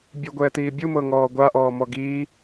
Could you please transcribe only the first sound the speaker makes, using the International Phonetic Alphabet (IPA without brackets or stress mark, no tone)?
bʲ